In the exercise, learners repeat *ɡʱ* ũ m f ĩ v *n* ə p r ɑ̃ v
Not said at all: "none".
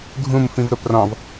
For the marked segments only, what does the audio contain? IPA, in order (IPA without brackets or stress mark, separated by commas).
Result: ɡʱ, ɾ